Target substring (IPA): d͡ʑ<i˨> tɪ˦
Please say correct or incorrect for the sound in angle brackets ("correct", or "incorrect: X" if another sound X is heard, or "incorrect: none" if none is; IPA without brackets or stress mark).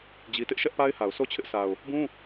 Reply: incorrect: i˦